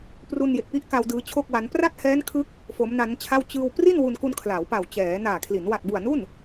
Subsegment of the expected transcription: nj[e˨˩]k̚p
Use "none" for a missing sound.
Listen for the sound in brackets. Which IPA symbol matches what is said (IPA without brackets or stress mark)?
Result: e˨˩